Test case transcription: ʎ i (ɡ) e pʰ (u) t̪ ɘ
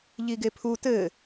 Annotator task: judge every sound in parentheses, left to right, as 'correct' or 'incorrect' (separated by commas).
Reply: correct, correct